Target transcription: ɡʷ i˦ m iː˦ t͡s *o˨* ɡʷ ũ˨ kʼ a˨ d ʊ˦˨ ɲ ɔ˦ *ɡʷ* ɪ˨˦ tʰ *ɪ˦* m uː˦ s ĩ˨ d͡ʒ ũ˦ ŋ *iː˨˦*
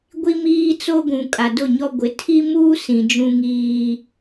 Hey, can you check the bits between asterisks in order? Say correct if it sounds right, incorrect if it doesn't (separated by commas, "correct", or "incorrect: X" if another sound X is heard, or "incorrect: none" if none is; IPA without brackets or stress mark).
incorrect: o˦, correct, incorrect: i˦, incorrect: iː˦